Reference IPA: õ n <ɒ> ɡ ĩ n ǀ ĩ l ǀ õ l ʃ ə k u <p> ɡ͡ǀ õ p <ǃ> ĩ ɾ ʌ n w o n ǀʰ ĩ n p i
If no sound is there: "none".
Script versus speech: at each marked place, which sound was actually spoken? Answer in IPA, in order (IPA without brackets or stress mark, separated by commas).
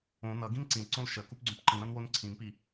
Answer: ʌ, p, ǃ